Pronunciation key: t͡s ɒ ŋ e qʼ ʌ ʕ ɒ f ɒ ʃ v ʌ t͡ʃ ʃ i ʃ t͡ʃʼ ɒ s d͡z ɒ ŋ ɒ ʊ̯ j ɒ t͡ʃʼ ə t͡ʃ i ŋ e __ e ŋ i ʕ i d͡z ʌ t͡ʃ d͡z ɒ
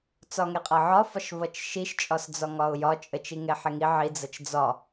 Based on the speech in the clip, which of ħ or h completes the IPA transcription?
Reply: ħ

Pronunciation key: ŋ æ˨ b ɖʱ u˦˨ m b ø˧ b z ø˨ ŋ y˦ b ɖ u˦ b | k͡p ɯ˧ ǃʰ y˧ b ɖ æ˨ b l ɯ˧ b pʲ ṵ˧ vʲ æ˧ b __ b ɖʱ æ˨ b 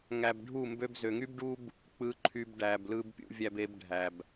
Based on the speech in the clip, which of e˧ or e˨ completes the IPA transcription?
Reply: e˧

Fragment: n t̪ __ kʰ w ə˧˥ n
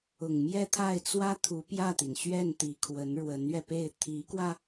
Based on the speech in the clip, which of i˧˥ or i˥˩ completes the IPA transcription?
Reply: i˧˥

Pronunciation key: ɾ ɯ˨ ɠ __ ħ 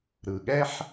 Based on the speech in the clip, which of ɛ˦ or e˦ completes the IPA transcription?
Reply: ɛ˦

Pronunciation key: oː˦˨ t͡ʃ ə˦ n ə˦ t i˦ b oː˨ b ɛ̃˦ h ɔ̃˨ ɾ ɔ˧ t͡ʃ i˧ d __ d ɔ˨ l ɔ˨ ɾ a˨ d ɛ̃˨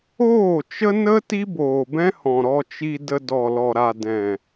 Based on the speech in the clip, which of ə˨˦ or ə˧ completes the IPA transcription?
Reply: ə˧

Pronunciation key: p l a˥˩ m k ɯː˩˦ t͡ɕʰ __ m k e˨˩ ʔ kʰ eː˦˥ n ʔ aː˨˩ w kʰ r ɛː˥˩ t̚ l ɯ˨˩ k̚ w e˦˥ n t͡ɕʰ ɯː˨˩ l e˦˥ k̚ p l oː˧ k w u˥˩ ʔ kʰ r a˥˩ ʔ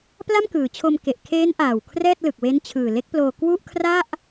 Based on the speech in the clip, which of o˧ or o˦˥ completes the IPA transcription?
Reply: o˧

